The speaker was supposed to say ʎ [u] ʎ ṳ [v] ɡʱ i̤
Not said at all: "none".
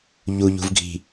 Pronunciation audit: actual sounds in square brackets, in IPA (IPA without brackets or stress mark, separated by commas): u, v